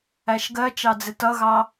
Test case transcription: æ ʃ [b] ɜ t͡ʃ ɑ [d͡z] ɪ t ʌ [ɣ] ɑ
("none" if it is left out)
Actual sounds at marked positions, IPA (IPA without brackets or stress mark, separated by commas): ɡ, d͡z, ɣ